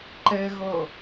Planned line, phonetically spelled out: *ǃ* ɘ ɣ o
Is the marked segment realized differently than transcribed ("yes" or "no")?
no